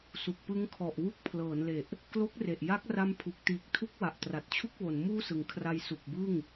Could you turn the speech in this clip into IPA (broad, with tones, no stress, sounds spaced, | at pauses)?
s u˨˩ k̚ p ɯ˦˥ ŋ kʰ ɔ˨˩ ʔ w u˥˩ k̚ pʰ l ɤː˩˦ n l e˨˩ ʔ | k l o˦˥ k̚ r e˨˩ ʔ j a˦˥ k̚ r a˦˥ m pʰ u˨˩ k̚ t iː˨˩ k̚ tʰ u˦˥ k̚ w a˨˩ ʔ t r a˨˩ t̚ t͡ɕʰ u˥˩ k̚ w o˩˦ n m uː˥˩ s ɯ˩˦ ŋ kʰ r a˧ j s u˨˩ k̚ b ɯ˥˩ ŋ